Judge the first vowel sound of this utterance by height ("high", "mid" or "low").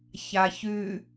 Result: low